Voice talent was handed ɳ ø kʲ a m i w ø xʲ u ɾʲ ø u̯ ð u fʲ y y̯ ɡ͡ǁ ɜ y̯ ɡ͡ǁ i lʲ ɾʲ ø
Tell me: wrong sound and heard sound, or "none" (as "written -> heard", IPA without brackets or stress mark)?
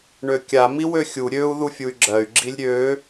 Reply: y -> u